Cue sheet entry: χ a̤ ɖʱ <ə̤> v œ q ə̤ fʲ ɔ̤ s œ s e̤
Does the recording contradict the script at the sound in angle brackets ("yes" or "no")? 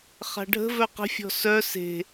no